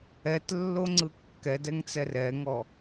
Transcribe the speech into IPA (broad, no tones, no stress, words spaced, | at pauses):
ɛtlːoŋ͡ǀɯ kːɛdɛŋt͡sɛr ɛŋɔ